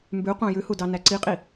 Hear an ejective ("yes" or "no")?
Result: yes